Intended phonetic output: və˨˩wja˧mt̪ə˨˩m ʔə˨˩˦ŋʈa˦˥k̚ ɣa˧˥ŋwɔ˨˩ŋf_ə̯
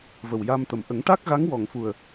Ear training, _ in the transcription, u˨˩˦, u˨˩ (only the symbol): u˨˩